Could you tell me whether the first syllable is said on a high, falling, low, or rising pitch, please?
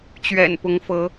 low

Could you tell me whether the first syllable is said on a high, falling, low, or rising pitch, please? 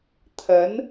rising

